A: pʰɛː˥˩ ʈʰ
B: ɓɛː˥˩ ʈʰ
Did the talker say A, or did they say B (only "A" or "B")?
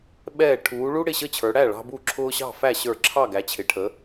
B